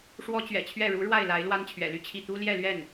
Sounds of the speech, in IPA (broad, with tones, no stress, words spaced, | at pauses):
ʂwɔ˥t͡ɕɥɛ̰˨˩t͡ɕʰɥɛ˥˩ ɻu˧˥ ɻwa˥˩ɪ̯la˧˥ɪ̯ lwa˥nt͡ɕʰɥɛ̰˨˩ly˥˧t͡ɕʰi˥˩ t̪u˥ljɛ˥˧lɥɛ˥˩n